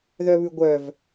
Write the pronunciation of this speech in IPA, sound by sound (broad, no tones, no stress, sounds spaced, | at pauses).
ð œ β ʉ ɡʷ œ v